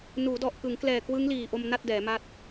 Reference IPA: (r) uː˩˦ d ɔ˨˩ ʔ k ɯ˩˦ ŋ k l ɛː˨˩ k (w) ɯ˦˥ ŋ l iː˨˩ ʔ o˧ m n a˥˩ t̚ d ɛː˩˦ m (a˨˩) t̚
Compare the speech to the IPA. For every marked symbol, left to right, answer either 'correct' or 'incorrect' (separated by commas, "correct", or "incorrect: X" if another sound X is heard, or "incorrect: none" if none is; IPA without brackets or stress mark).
incorrect: n, correct, incorrect: a˦˥